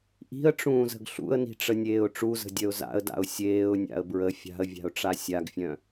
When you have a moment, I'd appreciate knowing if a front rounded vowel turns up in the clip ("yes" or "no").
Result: yes